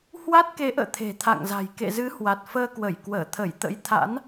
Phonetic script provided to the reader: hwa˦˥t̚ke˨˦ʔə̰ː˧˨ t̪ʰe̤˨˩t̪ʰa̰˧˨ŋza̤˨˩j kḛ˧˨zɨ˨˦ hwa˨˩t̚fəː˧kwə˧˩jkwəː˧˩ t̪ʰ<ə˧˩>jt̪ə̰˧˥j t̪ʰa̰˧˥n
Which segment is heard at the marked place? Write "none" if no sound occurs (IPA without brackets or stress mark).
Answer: ə˧˩